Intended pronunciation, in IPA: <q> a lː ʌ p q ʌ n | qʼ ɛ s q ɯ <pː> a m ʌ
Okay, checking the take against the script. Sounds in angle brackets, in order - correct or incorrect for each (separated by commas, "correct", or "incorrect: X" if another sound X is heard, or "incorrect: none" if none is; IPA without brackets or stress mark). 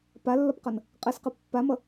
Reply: incorrect: p, correct